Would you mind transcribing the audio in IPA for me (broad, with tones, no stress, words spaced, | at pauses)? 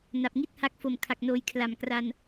na˨˩p̚ŋi˥˩t̚ha˦˥k̚ fo˨˩mkʰa˨˩k̚noː˨˩j kʰla˨˩mkra˧n